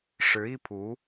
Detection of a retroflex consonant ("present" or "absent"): present